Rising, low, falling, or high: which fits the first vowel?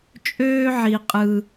high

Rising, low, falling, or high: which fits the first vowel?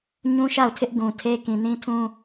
high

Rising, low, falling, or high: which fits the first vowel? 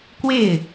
falling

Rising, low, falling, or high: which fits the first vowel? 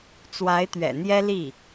rising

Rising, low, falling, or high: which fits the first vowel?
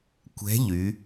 rising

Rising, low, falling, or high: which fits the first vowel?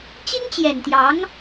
high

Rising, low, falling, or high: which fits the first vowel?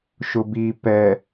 low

